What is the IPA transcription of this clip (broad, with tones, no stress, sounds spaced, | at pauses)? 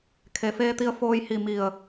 kʰ e˩ f eː˧ t̪ i˧ ə̯ f oː˧ j h i˧˩ m i˧˩ ə̯